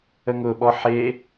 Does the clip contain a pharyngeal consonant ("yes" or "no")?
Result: yes